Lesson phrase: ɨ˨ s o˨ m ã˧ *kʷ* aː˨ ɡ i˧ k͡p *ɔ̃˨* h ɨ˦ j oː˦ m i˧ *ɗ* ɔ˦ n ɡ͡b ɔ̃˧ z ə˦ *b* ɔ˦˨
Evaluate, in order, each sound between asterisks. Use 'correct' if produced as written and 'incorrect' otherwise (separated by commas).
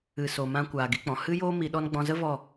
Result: correct, correct, correct, incorrect